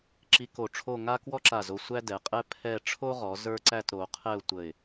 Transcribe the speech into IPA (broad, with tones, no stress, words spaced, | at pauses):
ǁi˧ ko˧˩ʈ͡ʂʰo˥˧ ŋa˥kwɔ˥ǁa˧˩ zo˧ sʷæ˥dɛ˩˧qʼɛ˥ pʰɛ˥˧ ʈ͡ʂʰo˥ʁɔ˩˧ zə˞˥ ǀæ˥˧tɾo˩˧qʰɛ˥˧ʊ̯tʷə˧˩ɪ̯